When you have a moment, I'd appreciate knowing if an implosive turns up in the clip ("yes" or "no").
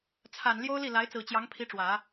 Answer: no